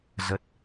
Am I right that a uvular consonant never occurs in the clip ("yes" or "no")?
yes